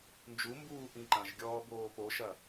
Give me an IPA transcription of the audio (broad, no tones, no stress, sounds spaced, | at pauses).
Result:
n d͡ʒ u m b uː ʔ ĩ ǃ ɐ̃ ʒ ɡʲ ɔː b oː p o ʃ ɐ